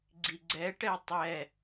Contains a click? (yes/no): yes